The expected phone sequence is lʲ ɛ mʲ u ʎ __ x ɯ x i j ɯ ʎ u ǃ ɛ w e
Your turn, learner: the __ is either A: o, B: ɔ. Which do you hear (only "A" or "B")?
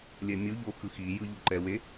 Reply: A